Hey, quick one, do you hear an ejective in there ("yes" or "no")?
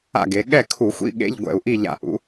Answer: no